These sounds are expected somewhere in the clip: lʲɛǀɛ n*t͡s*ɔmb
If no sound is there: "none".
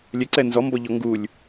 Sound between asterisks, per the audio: z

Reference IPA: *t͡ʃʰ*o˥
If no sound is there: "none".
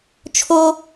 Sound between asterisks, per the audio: t͡ʃʰ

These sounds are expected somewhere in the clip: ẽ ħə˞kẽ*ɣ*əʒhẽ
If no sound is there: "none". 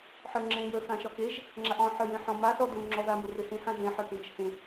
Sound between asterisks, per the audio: ɣ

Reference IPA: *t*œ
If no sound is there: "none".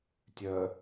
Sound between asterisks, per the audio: tʲ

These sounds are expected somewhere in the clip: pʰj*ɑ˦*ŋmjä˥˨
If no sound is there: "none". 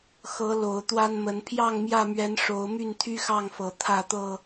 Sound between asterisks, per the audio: ɑ˥˨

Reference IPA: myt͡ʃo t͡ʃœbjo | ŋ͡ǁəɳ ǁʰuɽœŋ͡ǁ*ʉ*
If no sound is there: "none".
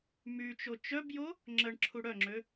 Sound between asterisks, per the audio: ø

